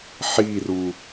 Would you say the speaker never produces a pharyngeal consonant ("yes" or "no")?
no